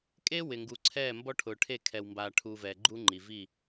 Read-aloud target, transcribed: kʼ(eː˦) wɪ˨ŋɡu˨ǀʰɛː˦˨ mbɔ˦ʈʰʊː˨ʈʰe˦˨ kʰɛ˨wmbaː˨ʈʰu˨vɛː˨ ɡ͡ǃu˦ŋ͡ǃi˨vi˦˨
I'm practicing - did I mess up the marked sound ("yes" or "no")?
yes